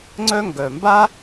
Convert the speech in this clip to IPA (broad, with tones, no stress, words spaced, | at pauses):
ŋ͡ǀœ˦ŋɡœ˨ mba˦